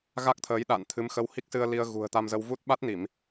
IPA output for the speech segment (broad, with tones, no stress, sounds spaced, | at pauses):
ɣ a˦˥ k̚ t̪ʰ əː˨˦ j ɗ a̰ː˧˨ n t̪ʰ ɨ˨˦ m x ə˧ w h i˦˥ k̚ s ɨ˧ ə̯ l i˧ ə̯ ɣ ṳ˨˩ ə̯ t̪ a˧ m z ə˧ w v u˦˥ t̚ ɓ a˦˥ t̚ n i˧˩˨ m